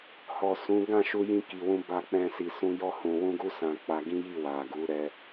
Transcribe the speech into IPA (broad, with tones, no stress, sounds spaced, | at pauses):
h ɔ˨ s ũ˨˦ ɡ ã˦˨ ʃ u˧ j ĩ˧ k i˨ w ũ˧ b a˧ k͡p ɛ̃˧ s i˨ s ũ˧ j ɔ˧ h ũ˨ w ũ˧ ɡ u˧ s ã˧ k͡p a˧ ɡ ĩ˦ j i˦˨ w a˨ ɡ u˨˦ ɾ ɛ˧